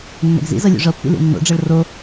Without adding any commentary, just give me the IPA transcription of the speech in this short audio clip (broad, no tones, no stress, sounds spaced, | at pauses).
nː ɛ̰ ɡ z ḭ z ɤ lʲ ṵ ʐ ɤ pː ḭ l ḭ nː o̰ ɖ͡ʐ ɤ ɭ r o